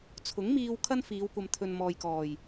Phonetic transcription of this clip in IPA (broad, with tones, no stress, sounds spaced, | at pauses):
t͡sʰ ʊ˨˥ ŋ m iː˧ w kʰ ɐ˥ n f iː˨˧ w kʷ ɐ˨ m t̪ʰ ɵ˨ n m ɔː˨ j k ɔː˨˩ j